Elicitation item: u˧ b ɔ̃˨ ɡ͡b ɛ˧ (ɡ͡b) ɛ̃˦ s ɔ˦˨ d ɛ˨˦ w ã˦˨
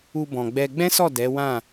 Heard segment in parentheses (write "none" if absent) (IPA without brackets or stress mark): ɡ͡b